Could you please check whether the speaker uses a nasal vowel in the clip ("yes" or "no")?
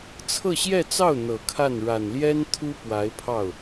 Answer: no